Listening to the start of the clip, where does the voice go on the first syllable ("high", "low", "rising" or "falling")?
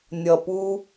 low